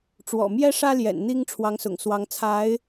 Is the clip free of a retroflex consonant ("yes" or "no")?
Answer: no